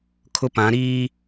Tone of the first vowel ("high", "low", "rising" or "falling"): high